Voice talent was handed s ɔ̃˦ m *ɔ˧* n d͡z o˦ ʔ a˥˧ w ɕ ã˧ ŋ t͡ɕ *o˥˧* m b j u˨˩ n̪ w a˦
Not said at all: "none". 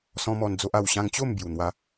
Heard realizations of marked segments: ɔ˧, o˥˧

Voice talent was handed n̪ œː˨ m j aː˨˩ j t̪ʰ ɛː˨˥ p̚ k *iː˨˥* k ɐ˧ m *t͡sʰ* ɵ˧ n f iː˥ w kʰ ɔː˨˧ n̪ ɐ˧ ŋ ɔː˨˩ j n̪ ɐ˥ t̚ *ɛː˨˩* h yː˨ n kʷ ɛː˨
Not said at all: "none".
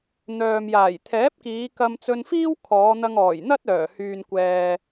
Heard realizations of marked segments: iː˨˧, t͡s, œː˨˩

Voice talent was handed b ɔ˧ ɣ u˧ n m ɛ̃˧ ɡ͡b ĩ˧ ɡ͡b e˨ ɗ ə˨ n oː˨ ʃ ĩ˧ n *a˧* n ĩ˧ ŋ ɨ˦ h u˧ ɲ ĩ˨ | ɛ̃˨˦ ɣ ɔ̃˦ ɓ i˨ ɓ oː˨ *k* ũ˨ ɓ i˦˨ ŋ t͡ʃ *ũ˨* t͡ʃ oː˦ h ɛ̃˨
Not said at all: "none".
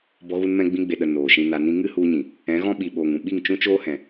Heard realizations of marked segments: a˧, ŋ, ũ˦

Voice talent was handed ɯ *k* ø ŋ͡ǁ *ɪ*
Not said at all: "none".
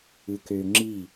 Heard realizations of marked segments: k, i

